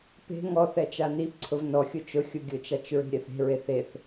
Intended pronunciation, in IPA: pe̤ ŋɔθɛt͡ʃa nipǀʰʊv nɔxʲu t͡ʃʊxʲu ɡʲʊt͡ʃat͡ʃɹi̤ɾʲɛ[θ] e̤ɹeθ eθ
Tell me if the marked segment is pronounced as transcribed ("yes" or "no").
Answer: yes